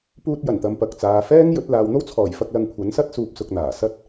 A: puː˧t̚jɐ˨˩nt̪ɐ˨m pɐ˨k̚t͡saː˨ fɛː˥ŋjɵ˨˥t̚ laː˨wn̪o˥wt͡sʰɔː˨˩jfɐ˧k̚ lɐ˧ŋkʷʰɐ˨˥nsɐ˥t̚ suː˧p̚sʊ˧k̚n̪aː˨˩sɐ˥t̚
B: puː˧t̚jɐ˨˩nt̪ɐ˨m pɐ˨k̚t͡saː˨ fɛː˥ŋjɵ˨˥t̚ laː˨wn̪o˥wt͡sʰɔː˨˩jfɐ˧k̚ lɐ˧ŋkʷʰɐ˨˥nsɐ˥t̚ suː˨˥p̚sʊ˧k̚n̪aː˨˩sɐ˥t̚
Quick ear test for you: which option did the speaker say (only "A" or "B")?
A